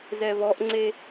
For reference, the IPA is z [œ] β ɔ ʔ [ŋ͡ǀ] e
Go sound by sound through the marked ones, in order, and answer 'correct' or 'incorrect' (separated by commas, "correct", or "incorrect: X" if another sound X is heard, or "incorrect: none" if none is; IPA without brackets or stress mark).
incorrect: ɛ, correct